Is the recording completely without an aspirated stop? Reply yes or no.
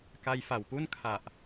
no